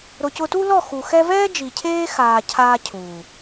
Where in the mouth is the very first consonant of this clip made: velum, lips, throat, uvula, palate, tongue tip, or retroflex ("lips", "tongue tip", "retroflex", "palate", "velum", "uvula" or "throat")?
tongue tip